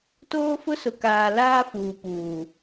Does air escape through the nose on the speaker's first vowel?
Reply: no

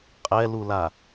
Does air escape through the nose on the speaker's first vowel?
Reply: no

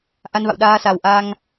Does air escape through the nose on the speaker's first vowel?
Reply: no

